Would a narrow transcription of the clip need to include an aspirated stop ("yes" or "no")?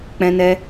no